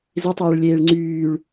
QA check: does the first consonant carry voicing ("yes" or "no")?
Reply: yes